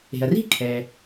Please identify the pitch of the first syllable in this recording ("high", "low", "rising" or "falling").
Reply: low